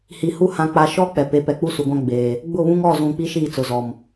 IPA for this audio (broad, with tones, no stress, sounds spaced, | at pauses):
h i˨ h u˦ h ã˨ k͡p a˨ ʃ ɔ˦ k͡p ɛ˨ p e˨˦ p ɛ˨ k͡p u˦ s u˨ ɡʷ ã˦ ɡ͡b eː˨ | ɡ͡b ʊ˦˨ β ũ˦ ŋ ɔ˦˨ z ũ˨ k͡p i˦ ʃ iː˦˨ t͡s ʊ˨ z ɔ˨ m